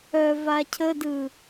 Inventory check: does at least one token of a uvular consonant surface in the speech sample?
no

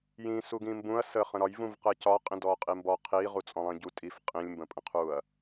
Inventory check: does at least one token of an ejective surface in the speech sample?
yes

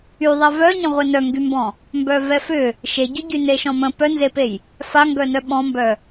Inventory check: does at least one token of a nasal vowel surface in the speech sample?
yes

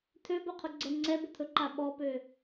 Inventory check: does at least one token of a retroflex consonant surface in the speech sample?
no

